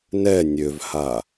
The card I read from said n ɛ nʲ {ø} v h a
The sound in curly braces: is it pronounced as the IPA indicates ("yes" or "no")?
yes